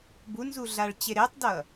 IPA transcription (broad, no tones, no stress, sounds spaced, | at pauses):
b u n z u ɮ a ɭ t͡ɕ e ɾ e tˤ d ʌ